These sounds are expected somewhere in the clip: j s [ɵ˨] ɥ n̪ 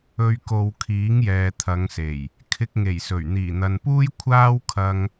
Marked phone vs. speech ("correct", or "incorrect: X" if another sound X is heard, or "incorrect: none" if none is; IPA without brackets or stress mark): incorrect: ɵ˨˩